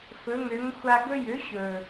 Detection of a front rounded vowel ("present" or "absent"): present